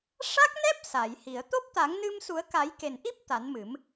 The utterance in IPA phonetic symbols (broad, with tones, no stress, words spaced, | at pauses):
ʂa˦˥k̚nɛ˦˥p̚ sa˨˩˨jhi˨˩˨ə̯ t̪o˦˥p̚t̪a˨˩˦ŋnɨ˧msu˨˩˦ə̯ ka˨˩˦jke˨˩nʔi˦˥p̚ t̪a˨˩˦nmɨ˨˩˦m